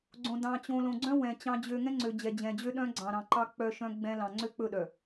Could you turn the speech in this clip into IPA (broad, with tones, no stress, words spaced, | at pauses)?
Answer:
ɡ͡ǀõ˨ dɑ̃˨ t͡ɕõ˨ lõ˨ɡ͡ǀœ̃˦ wɛ̃˨ t͡ɕɑ̃˨d͡ʑø˨ ŋɛ̃˦ŋ͡ǀø˨ d͡ʑɛ˨d͡ʑɛ̃˨d͡ʑø˦ ɗœ̃˦ ɡ͡ǀɑ̃˨ɾɑ̃˨ǃɑ˦ k͡pœ˦ʃœ̃˦ɡ͡bɛ̃˦ lɑ̃˨ŋ͡ǀø˦k͡pɵ˦˨ɗœ˨